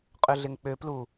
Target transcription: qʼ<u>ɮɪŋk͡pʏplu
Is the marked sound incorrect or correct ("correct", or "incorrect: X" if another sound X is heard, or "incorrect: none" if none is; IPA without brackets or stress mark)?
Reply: incorrect: ʏ